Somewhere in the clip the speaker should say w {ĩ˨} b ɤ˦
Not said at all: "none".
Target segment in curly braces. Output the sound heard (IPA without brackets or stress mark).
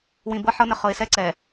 ĩ˨